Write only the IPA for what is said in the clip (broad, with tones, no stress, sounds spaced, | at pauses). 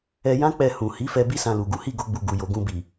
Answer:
ɛ˧ j ã˦ k͡p ɛ˧ h ũ˨ h i˨˦ f ɛ˧ b i˦ s ã˧ l u˨ ɡ u˨˦ h i˦˨ ɡ o˧ ɡ͡b u˨ ɡ u˨ j o˨ ɡ ũ˧ b i˨